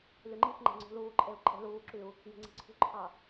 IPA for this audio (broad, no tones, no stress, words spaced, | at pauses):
lyŋ͡ǃixŋ͡ǃe̤ ŋ͡ǀṳluːǃʼeu̯ ǃʼe̤luːǁyu̯ | je̤ŋ͡ǀi̤ǀʰṳǃʰɑ